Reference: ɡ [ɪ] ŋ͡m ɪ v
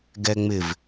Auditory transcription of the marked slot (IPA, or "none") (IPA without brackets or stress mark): ɛ